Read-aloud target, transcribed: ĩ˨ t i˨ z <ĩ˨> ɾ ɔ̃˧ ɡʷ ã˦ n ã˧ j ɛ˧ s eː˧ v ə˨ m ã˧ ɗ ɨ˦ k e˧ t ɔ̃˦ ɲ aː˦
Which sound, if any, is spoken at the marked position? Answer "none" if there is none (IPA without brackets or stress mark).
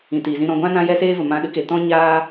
ĩ˧